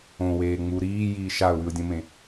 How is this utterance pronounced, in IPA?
õ w eː ŋ͡m u ɾ iː j iː ʃ a ʊ̯ w ʉ ʊ̯ dʲ õ m ẽ

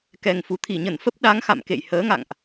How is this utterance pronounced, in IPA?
k ɛ˨˩ ŋ f u˨˩ t̪ʰ i˧˩ ɲ ə˧˩ n f ə˦˥ p̚ ɗ a˨˦ ŋ x a̰˧˨ m k ḛ˧˨ j h əː˨˦ ŋ a̰˧˨ ŋ ʔ

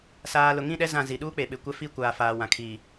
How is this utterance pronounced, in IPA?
s aː˨ l ʊ˨ ŋ ĩ˦˨ ɗ ɛ˦ z ã˦˨ z i˨ ɗ uː˦ k͡p e˨ ɓ ɪ˨ kʷ ɛ˦ f i˦ kʷ aː˨ f aː˨ w ã˨ kʰ i˨

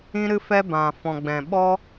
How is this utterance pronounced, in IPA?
ĩ˦ ɾ ɨ˦ f ɛ˦ b ã˨ f ɔ̃˨ ɡ͡b ɛ̃˨ ɓ ɔ˦

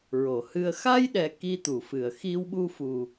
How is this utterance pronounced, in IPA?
ɹ o˨˩˨ h ɨ˧ ə̯ x a˧ j ɗ ɛ˨˩ k i˧ t̪ u˨˩˨ f ɨ˨˩˨ ə̯ x i˧ w ɓ u˧ f u˨˩

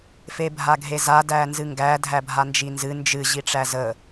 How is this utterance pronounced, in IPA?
f e bʱ a ɡʱ e z a d æ n z ɨ ŋ ɡ æ dʱ æ bʱ a n d͡ʒ i n z ɨ n d͡ʒ ɨ ʑ i ʈ͡ʂ æ z ə

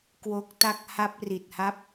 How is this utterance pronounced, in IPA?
k w o˦˥ k̚ t a˥˩ k̚ h a˦˥ p̚ r i˨˩ t̚ h a˦˥ p̚

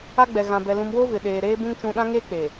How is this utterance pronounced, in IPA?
a˦ ɡ͡b ɛ˨ ɣ ã˨ b ɛ˨ l ũ˨ m w o˦ v ɪ˨ ɗ eː˨ ɾ eː˦ b ũ˦ ŋ t͡ʃ ũ˨ ɗ ã˦ ŋ e˦ k͡p e˨

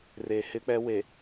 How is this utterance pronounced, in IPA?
r e˨ h ɪ˦ k͡p ɛ˦ w e˨

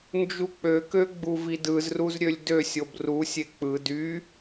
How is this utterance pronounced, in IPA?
n d͡ʒ u k͡p ø k ø ɡ͡b u v i d ɯ z r u z ɾʲ ø lʲ d ø sʲ o b r u sʲ e k͡p ɯ d y

